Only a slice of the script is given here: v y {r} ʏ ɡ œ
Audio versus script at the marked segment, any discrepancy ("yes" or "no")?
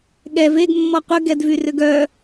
no